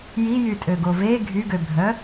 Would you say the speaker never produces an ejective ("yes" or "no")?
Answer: no